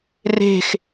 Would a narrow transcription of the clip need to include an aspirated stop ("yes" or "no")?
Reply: no